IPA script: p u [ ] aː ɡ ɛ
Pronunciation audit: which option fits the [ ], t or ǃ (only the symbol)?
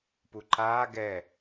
ǃ